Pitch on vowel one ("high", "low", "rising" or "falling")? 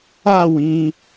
falling